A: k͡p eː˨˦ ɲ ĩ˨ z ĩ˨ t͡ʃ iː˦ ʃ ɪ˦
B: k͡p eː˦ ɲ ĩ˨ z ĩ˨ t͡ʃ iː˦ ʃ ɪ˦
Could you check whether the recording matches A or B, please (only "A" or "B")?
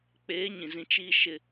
A